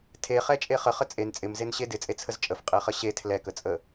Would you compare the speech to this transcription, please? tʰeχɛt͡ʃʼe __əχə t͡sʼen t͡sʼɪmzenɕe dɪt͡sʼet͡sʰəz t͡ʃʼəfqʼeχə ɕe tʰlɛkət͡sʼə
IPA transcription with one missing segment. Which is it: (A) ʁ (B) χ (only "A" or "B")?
B